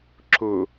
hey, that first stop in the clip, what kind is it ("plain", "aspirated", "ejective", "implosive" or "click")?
click